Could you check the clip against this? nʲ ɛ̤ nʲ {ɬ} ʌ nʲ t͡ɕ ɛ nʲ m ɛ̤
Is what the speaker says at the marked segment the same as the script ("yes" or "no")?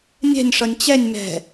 no